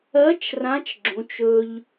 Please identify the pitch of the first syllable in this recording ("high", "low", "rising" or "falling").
rising